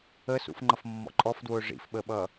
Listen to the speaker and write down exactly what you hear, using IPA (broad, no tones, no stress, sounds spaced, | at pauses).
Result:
ə s ṵ f ŋ͡ǃ ʌ f mː ɔ̰ ǃʼ ɔ f d w ʊː ʐ ḭ f ɓ ə ɓ ʌ